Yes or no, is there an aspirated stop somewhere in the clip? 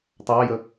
no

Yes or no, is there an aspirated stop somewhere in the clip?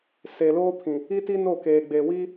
yes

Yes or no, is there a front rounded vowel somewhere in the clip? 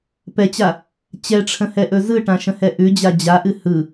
no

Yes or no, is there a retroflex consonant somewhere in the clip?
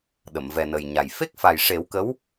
yes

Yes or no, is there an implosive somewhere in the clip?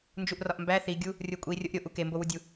no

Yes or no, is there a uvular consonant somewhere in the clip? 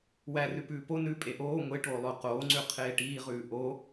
yes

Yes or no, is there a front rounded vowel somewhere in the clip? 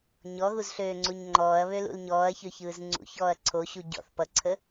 yes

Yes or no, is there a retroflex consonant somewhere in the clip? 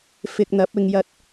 no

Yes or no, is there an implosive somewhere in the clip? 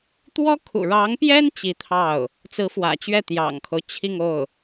no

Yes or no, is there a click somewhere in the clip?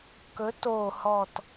no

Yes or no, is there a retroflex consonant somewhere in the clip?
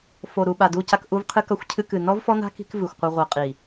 no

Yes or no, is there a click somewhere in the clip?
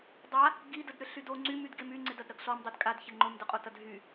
yes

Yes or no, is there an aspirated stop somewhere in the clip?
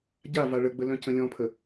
yes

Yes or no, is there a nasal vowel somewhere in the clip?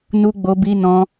yes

